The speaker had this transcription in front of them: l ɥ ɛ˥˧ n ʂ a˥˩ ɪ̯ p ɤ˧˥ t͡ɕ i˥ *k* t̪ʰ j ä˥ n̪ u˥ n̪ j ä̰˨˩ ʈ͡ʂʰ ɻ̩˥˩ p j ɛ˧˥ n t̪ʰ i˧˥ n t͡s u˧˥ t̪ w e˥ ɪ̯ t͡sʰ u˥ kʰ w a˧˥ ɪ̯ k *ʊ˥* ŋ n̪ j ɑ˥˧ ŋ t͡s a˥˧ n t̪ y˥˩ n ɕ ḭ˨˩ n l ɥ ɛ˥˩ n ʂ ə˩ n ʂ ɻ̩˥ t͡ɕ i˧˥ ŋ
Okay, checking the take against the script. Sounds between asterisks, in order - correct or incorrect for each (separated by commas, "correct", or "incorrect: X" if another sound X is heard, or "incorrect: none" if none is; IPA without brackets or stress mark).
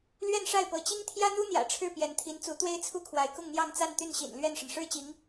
incorrect: ŋ, incorrect: ʊ˥˧